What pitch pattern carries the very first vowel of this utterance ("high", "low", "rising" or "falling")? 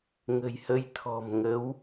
low